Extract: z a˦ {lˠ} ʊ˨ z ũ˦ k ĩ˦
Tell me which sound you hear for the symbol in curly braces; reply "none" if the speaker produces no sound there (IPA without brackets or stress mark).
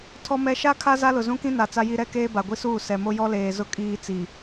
l